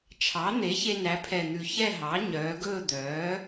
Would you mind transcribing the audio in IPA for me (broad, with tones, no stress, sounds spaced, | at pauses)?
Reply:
t͡ʃʰ ɑ˩˥ n̪ e˩˥ ç e˧ n æ˩˧ pʰ ɛ˨˩ n̪ ʉ˨˩ ç ɛ˥˧ ɦ ɑ˩˥ ɲ œː˩˧ ɡ ɵː˥˧ d̪ œː˩˥